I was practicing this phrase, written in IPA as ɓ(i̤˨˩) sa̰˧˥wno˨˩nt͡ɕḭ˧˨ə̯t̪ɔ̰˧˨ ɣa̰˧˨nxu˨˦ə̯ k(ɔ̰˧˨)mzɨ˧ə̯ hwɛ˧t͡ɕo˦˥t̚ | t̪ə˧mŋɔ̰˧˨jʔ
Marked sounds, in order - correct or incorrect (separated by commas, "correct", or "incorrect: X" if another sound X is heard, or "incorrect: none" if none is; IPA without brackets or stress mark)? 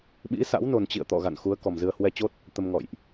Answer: incorrect: ḭ˧˥, incorrect: ɔ˨˩